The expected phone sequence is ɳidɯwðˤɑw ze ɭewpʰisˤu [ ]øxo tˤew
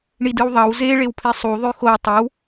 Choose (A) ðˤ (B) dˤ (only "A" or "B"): A